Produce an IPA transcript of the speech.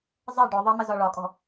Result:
zˤ ə ɖ ʊ ðˤ ʌ m ə z ɒ ɭ ɒ kʼ ɔ̤

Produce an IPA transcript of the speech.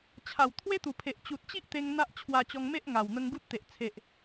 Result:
t͡ɕʰ a˨˩ w t̪ʰ w e˦ t̪ u˨˩ pʰ e˨ ʔ t͡ɕ u˨ t̚ t͡ɕ i˦ ʔ t̪ e˧ ŋ n̪ a˦ ʔ t͡ɕʰ w a˧ t͡ɕ ɔ˧ ŋ m e˦ ʔ ŋ a˨˩ w n̪ ə˧ ŋ ɡ u˦ t̚ t̪ e˨ ʔ t͡sʰ e˨ ʔ

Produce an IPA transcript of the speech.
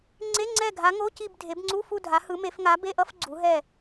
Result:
ŋ͡ǀ e˧˥˧ ŋ͡ǀ ɛ˦˨ ɡʱ a˨˦ ŋ o˧˥˧ c i˦˨ b dʱ e˨˦ b ŋ͡ǀ u˧˥˧ f u˦˨ dʱ a˨˦ h ɯ˨˦ m e˨˦ f ŋ a˨˦ b e˧˥˧ ʔ ʌ˧˥˧ f ɡ͡ǀ u˨˦ ɦ ɛ˦˨

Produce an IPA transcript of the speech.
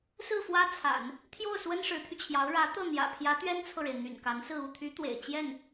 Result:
s ɹ̩˥˩ f w ä˥ t͡sʰ a̰˨˩˦ n | t̪ʰ j o˥˩ ʊ̯ s w ə˥ n ʂ ɻ̩˧˥ t̪ʰ y˧ t͡ɕʰ j ɑ˧˥ ʊ̯ ɻ ä˧˥ t̪ ɤ˥˩ n̪ j ä̰˨˩ pʰ j ä˧˥ t̪ ɥ ɛ˥ n t͡sʰ ɤ˨ ɻ e˩ ɪ̯ n̪ y̰˨˩ n k a˧˥ n s ɹ̩˥˧ u˥˩ t̪ʰ y˧˥ t̪ w ḛ˨˩ ɪ̯ t͡ɕ j ɛ˥˩ n

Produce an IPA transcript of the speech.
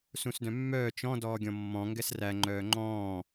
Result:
s ũ s d œ̃ mː œː t͡ʃ ɔ̃ d ɔː ɡʲ ɔ̃ mː ɔ̃ ŋ ɡ ɛ s r æ ŋ͡ǃ œː ŋ͡ǃ ɔ̃ː

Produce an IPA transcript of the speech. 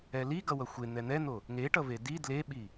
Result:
ɛ l i ɡ ʌ w ʌ xʷ e n̪ ɛ n̪ ɛ n̪ o | ŋ e ʈ ʌ v e d i d l e ɓ i

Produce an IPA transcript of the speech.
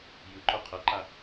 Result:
j ɯ ǃ o qʰ ʌ ǃ a

